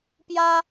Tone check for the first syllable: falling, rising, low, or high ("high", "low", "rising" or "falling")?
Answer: high